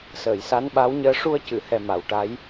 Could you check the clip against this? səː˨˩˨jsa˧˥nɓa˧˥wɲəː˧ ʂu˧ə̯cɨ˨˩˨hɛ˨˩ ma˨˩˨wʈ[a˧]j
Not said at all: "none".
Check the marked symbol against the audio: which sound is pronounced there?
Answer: a˧˥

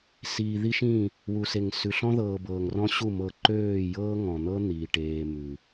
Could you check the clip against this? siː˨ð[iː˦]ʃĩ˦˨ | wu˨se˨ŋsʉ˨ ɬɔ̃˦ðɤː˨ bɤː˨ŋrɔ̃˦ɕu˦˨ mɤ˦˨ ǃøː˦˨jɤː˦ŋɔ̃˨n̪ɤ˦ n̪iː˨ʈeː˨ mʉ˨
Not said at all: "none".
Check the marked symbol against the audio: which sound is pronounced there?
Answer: i˦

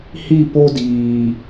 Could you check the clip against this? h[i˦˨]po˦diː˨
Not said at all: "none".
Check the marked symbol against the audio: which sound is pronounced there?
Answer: i˦˨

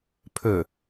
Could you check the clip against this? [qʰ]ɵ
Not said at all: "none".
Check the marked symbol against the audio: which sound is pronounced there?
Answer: pʰ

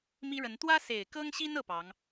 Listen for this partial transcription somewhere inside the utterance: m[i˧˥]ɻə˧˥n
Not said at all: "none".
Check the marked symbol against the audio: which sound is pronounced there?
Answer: i˥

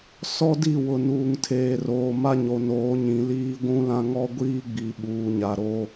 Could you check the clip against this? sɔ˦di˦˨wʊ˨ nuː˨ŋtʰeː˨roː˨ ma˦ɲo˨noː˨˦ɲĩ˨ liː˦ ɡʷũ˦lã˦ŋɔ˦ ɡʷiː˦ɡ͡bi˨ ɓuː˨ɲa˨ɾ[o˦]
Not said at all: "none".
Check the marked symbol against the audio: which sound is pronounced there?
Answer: o˦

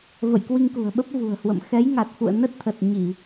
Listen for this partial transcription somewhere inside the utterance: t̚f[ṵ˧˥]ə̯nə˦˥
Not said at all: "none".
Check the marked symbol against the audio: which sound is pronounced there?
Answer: ṵ˧˨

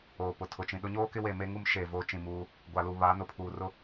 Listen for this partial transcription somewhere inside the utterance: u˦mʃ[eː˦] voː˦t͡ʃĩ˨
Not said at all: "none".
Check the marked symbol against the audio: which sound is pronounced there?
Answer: eː˨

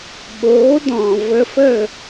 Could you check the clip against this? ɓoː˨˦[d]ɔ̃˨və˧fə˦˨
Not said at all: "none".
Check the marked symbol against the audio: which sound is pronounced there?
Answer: d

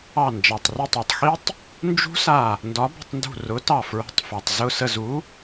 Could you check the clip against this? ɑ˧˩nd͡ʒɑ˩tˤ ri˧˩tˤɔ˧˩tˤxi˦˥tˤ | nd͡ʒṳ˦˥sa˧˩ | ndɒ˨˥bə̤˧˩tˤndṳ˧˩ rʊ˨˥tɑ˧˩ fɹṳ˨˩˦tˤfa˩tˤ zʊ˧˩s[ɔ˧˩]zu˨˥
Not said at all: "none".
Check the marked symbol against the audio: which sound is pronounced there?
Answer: ə˧˩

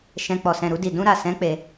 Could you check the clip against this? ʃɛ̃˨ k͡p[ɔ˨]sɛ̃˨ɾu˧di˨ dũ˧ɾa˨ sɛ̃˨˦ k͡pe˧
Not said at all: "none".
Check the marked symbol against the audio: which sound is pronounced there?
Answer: ɔ˨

